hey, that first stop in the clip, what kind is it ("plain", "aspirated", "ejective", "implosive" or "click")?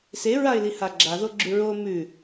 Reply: click